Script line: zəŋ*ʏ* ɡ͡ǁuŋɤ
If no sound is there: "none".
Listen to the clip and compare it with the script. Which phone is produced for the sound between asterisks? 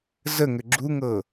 ʏ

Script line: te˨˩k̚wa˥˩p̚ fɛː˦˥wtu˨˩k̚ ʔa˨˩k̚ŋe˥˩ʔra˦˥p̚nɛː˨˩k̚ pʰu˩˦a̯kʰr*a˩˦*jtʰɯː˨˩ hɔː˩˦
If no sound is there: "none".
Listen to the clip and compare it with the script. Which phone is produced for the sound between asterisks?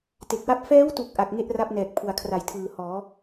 a˨˩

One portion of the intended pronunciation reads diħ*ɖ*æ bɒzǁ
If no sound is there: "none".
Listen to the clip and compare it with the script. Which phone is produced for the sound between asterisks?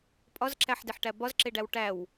ʈ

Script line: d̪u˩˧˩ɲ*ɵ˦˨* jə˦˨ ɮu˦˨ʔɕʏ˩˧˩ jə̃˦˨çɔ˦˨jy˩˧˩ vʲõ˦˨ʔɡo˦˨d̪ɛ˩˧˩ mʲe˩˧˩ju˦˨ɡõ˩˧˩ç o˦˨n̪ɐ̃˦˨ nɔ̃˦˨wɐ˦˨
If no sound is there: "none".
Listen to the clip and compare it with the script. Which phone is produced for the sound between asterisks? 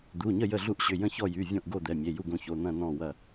ə˦˨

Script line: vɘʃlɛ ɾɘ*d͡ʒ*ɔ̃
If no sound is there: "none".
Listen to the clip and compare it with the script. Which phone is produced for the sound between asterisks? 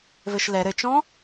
t͡ʃ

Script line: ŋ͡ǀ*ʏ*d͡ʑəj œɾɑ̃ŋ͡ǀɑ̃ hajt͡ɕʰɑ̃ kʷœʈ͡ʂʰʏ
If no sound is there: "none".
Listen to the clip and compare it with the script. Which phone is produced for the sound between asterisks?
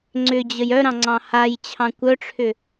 ʏ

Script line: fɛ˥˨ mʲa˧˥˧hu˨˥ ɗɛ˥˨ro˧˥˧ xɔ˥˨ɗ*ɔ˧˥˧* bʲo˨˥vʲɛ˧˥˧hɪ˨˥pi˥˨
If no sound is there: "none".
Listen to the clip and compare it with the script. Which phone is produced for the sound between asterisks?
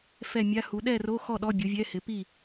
ɔ˧˥˧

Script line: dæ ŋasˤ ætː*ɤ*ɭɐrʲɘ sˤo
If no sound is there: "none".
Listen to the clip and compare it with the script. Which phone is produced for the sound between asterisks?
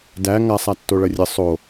o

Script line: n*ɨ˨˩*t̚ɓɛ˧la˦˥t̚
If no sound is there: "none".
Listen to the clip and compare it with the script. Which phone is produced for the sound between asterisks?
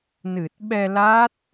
ɨ˨˩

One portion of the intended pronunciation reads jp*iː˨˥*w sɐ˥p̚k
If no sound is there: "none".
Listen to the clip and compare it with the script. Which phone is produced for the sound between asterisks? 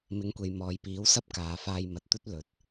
iː˨˥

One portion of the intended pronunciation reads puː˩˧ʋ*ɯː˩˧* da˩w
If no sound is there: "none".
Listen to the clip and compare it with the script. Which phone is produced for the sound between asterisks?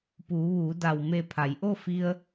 uː˩˧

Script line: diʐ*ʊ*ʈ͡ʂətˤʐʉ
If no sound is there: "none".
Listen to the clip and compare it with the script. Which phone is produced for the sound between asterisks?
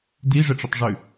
ə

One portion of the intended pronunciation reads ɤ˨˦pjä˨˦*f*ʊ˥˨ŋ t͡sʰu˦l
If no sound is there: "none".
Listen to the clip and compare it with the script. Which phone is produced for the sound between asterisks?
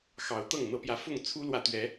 f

